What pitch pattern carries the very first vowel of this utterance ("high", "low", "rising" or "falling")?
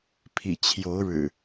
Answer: low